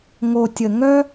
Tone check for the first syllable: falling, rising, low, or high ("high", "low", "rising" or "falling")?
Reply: low